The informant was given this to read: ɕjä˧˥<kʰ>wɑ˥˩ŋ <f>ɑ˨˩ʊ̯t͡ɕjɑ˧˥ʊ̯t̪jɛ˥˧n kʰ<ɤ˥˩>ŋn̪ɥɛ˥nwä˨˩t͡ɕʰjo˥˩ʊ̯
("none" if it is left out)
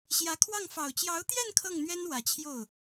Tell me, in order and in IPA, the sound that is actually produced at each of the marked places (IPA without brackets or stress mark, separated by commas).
kʰ, f, ɤ˥˩